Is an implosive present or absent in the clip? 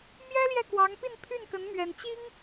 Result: absent